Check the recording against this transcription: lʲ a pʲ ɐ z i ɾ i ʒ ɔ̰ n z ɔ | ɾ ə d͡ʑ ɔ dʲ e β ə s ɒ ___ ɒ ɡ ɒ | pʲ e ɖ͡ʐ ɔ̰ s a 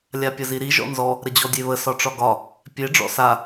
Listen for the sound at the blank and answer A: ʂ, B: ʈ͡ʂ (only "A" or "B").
B